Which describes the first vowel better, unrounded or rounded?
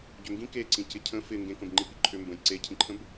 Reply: rounded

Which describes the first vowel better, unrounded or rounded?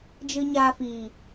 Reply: unrounded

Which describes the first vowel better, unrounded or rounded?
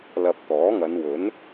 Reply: unrounded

